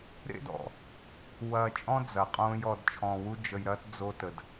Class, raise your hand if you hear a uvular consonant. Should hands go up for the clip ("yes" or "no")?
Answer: yes